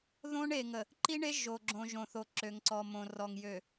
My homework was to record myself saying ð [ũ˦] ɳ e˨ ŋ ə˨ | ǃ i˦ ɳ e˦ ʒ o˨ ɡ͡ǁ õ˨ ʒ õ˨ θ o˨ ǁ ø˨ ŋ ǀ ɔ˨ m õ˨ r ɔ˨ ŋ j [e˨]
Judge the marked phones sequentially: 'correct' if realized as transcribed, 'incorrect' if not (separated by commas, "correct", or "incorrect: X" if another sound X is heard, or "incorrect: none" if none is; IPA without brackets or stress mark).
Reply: incorrect: õ˦, incorrect: ø˨